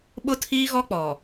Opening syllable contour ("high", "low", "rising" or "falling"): high